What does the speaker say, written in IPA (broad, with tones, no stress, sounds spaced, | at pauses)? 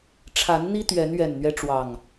ʈ͡ʂʰ a˨˦ n n̪ i˦ t̪ ɥ ɛ˨˦ n ɥ ɛ˨˩ n n̪ ɥ ɛ˦ ʈ͡ʂ w ɑ˨˩ ŋ